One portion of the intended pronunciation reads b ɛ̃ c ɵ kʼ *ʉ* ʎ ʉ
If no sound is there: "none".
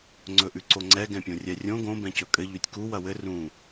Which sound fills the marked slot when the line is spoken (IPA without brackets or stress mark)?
ɘ